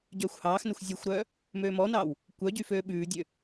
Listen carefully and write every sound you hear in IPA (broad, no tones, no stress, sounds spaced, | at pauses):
ɟ œː xʷ h ɑː x n œ xʷ zʲ o xʷ ɾ œː | m øː m ɔ n ɑː w | kʷ œ ɟ y f øː ɓ ʉː dʲ ø